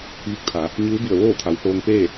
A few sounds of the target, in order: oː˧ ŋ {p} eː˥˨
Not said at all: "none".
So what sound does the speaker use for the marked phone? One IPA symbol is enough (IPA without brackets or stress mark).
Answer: p